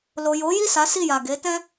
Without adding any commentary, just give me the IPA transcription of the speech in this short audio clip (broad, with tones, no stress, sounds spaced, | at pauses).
l o˨ j o˨˦ j i˦˨ s a˨˦ s i˦˨ j a˨ ɡ e˨˦ t ɛ̃˦